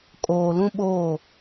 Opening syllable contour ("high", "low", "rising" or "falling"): low